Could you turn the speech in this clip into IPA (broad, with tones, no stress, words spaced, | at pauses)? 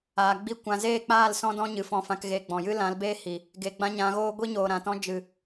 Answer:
aː˨ɡ͡bi˦˨ kʷã˧ zeː˦˨k͡paː˦˨l sɔ̃˦dɔ̃˦ ɲɨ˨fɔ̃˧fã˧k ɣe˧ɡ͡bɔ̃˨ jɨ˦lã˨˦lbeː˦ hi˨ | ɡe˨ɡ͡bã˦ɲã˨˦ɣoː˦ ɡʷi˦ɲoː˨ɾã˨tɔ̃˦ d͡ʒɨ˨